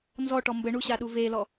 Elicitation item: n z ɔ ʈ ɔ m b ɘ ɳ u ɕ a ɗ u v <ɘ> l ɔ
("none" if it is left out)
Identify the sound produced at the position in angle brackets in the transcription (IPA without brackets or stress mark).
e